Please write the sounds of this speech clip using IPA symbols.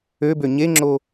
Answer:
ø b ø ɲ e ŋ͡ǁ o

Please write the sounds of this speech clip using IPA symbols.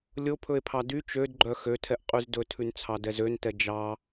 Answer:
lʲ o pʰ ɵ e̯ pʰ ɑ d y t͡ʃ ø d ɡ͡ǃ œ x ø tʰ ɛ ʔ qʼ y z d ɵ tʰ ʉ n t͡sʰ ɑ d ɛ z ø n t ɛ d͡ʒ ɑ

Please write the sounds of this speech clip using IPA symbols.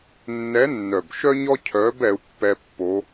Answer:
nː ɛ˧˥ nː œ˨˩ b ʃ œ˥ ɲ ɔ˥ cʰ œ˧˥ b ɛ˧˥ u̯ pː ɛ˥ pː o˧˥

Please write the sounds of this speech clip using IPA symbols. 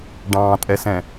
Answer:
ɖ ɑ̃ tʼ ɛ s ɛ̃

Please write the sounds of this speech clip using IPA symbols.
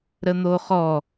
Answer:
ɾ ə n̪ o χ ɔ

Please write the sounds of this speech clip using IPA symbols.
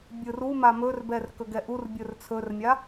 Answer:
bʲ ɯ r u m a m ɵ r b ɛ r k ɵ ɡ ɛ ʔ u r bʲ ɵ r t͡sʰ ɵ r mʲ a

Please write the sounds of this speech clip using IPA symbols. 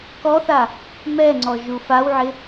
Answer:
k ɔ θ a | m ɛ ŋ͡ǀ ɔ ʒ u f a w ʕ ɪ

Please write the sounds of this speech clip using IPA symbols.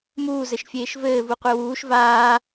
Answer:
m uː z ɘ ʃ fʲ eː ʃ v ɘː v u qʷ e w uː ʃ v aː

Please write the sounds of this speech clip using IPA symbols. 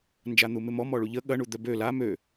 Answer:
n d͡ʒ a n̪ u m ɪ m ɔ m ɔ ɭ u ʎ ə ɠ ɐ ɳ u d̪ œ b ø l a m ø

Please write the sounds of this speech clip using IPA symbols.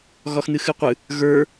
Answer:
ɣ ɒ x n̪ ɨ x ɨ qʷ ɨ | ɣ ə˞

